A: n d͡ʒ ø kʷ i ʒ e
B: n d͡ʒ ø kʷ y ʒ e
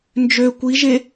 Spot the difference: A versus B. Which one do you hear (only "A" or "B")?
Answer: A